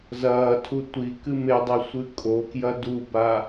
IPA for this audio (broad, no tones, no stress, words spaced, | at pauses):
zɐːtʰu tʷi kɨmedˤi sʷɨkʼokjɐ duba